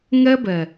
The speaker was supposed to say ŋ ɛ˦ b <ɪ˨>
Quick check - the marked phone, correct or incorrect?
incorrect